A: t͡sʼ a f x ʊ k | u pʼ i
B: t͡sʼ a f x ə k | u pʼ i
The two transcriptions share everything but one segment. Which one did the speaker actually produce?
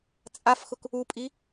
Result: A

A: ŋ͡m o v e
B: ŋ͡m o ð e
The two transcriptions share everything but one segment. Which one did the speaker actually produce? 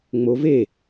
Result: A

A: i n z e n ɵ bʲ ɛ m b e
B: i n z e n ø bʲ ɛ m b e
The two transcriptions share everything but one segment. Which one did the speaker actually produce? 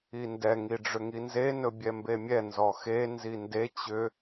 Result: A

